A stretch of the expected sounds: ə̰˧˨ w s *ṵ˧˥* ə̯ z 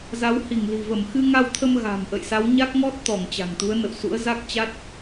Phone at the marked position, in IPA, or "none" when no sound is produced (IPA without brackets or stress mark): ṵ˧˥